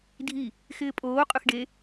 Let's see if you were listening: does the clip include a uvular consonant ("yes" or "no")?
yes